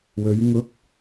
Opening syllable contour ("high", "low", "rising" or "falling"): rising